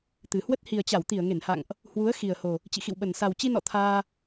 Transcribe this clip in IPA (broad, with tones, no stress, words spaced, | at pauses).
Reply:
t̪ɨ˨˩ hwə˦˥t̚ hi˨˩ə̯t͡ɕa˧˩wt̪i˧˩ə̯ ŋe˧˩nha̰˧˨ŋʔ | hwu˨˦ə̯ xi˨˩ə̯ho˨˩ | t͡ɕḭ˧˨xḭ˧˨wɓə˨˩n sa˨˩wt͡ɕi˧nɔ̰˧˨ t̪ʰaː˧